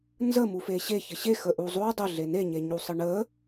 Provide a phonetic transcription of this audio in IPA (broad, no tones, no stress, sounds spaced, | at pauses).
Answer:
n z ə m u f e ɕ e ç ɘ ɕ e x ə ʔ u zˤ u dˤ ɘ ɮ e n e ɲ e ɲ u sˤ ə ɳ ə